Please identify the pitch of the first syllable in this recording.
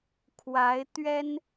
rising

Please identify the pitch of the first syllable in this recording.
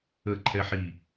falling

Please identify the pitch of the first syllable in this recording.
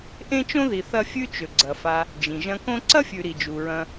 high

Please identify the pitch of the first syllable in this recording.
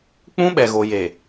high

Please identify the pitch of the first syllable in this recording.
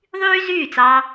high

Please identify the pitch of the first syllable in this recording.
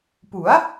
rising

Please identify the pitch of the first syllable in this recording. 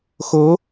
rising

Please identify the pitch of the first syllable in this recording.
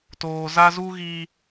low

